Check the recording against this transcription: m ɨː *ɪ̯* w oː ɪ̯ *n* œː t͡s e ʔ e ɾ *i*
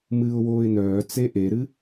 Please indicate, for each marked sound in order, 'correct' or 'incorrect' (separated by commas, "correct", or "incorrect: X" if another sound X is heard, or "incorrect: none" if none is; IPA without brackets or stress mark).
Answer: incorrect: ʊ̯, correct, incorrect: ɨ